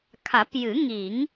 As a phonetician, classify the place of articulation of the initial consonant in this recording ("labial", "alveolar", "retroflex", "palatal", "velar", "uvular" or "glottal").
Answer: velar